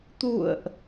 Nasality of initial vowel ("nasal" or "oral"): oral